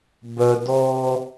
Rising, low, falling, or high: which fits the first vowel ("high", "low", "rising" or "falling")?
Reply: low